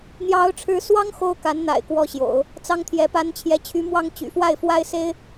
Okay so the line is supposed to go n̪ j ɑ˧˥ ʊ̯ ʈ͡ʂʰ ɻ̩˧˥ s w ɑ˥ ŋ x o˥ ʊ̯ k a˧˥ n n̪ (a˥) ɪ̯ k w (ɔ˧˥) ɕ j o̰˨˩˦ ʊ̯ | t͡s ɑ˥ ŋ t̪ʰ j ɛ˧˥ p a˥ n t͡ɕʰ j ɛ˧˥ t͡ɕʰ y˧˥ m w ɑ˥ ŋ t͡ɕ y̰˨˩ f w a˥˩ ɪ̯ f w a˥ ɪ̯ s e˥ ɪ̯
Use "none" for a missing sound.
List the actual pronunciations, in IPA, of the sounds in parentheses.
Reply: a̰˨˩, ɔ˥˩

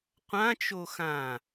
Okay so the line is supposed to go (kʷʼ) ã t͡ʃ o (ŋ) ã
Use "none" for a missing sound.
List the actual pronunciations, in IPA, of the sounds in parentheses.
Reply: qʷ, x

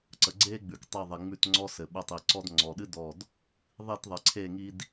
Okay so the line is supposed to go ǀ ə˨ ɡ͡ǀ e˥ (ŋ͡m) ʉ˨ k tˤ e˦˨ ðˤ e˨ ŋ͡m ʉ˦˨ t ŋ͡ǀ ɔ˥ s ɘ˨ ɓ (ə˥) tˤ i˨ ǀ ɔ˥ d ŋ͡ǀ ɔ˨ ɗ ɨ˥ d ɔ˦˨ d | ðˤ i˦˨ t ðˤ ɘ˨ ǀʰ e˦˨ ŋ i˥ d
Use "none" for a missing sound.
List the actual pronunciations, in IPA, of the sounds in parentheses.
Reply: ɡ͡b, ə˦˨

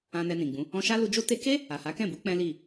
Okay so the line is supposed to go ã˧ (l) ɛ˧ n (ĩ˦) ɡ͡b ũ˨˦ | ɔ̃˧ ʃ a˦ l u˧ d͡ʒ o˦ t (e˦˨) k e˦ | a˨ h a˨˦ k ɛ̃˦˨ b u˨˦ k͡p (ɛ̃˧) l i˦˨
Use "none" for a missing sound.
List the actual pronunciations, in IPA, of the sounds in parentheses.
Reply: n, ĩ˨, e˧, ɛ̃˦

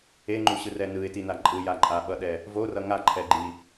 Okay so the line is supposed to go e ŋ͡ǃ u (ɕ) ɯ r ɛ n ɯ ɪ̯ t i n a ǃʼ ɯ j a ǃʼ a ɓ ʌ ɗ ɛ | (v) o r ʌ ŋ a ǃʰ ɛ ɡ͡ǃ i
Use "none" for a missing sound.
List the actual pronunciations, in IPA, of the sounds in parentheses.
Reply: ɕ, v

